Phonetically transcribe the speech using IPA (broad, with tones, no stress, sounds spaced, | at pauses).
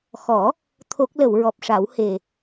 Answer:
x ɔ˨˩˦ | t̪ʰ o˦˥ k̚ l ə˨˩˨ w ɹ ɔ˨˩ p̚ ʂ a˨˩˦ w h e˨˩